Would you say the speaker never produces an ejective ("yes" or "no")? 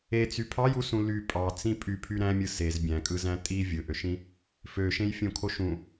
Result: no